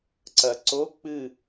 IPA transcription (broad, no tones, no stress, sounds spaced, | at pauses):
ǀ ɐ ǀ o k͡p ɨ